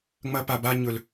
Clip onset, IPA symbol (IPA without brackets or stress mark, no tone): ŋ͡m